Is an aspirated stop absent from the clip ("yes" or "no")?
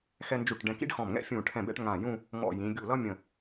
no